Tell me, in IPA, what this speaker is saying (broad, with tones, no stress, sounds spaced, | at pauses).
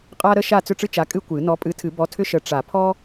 qʼ a˥ ɾ ə˥ ʃ a˥˨ t͡s ʏ˥˨ ʈ͡ʂ ɨ˥ t͡ʃ a˨˥ kʼ ɨ˥ kʷ ɨ˨˩˦ n ɔ˨˥ pʼ ɨ˨˥ tʰ ɨ˨˩˦ b ɔ˨˥ tʰ ʏ˥ ʃ ə˨˥ ʈ͡ʂ a˨˩˦ pʰ ɔ˥